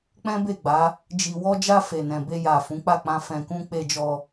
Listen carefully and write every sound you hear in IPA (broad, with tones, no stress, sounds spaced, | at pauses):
k͡p ɛ̃˦ b e˦˨ ɡ͡b a˨˦ | d͡ʒ i˨ w ɔ˧ d͡ʒ a˧ f e˨ n ɛ̃˨ b e˧ j a˨ f ũ˨˦ k͡p a˦˨ k͡p ã˧ f ɛ̃˨ k ũ˧ k͡p e˧ d͡ʒ ɔ˧